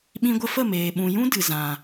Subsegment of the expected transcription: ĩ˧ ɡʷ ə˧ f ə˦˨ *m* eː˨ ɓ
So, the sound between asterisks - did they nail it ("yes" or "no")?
yes